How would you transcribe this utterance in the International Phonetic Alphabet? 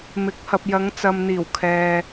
m ɪ˨˥ k̚ h ɐ˨ p̚ j ɐ˨˧ ŋ t͡s ɐ˨ m n̪ iː˨˩ w kʰ ɛː˨

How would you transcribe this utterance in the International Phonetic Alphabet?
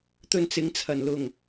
t̪ ɵ˧ n t͡s ɪ˨˧ ŋ t͡sʰ ɐ˨˩ n l ʊ˨˩ ŋ

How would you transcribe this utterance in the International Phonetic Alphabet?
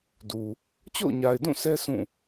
d u˨ | t͡ɕ o̰˦˨ ʊ̯ ɲ a˨ ɪ̯ d ũ˦˨ sʰ ɛ˦ s ũ˦˨

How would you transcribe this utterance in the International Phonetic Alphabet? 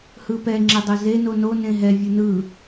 h ɯ p ɛ ŋ͡ǁ ɛ dˤ ʌ z e n o n o n ẽ ɦ ɛ vʲ ɯ n ɯ

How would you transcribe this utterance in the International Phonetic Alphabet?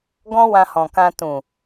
ɡ ɔ̃˦ w ã˧ h ɔ̃˨ k ã˧ t ũ˨

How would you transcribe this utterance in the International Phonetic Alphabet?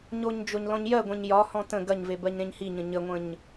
ɲ o ɲ d͡ʒ o ɲ l ɔ̃ ɲ j ɜ ɡʷ ẽ ɲ j ɒ h ɔ̃ t ə̃ ɡ ɐ ɲ v e b ɜ ɲ ɾ ẽ ɲ h i ɲ ə̃ ɲ ə ŋʷ ə̃ ɲ

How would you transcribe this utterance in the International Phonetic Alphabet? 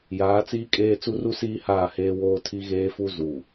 j aː˨˦ t͡s iː˦ kʼ eː˦ t͡s u˦ r u˦ s iː˦ h aː˦˨ h eː˦ w oː˦ tʰ i˦ ɣ eː˦ f u˦ z u˨

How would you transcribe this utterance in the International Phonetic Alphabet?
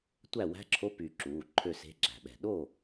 tʷ æ˥˩ w æ̤˧˥˧ ǁʰ o˧˥˧ p y˧˩ ǁ uː˩˧˩ ǃʰ ø˥˩ s e̤˧˥˧ ɡ͡ǁ æ̤˧˩ ɓ ɛ̤˧˩ ɗ o˥˩

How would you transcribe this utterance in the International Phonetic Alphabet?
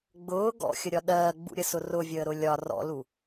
ɡ͡b ʊː ɡ ɔ̰ xʲ ə ɾʲ ɒ ɗ ɜː ɡ͡b ṵ ɾʲ ə s ʊ r ʊ vʲ əː ɾ ʊ lʲ ɒ r ɔ̰ l u

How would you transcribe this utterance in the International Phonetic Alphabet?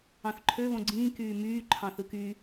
ɑ̃ θ ǃʰ ø β õ ɡ͡ǀ ĩː k yː m yː ǃʰ ɑ̃ θ ɯ k y

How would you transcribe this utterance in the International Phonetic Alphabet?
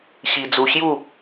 ɕ i˧ d͡z u˧ ɕ j u˥˧

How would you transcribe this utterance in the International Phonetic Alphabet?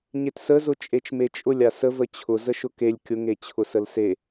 ɲ e t s ə z ʊ t͡ʃʼ e t͡ʃ m e t͡ʃʼ ʊ lʲ a s ə v ə t͡ɕʰ ʊ z ə ʃ ʊ k e lʲ kʲ ʊ ŋ e t͡ɕʰ ʊ s ə l s e

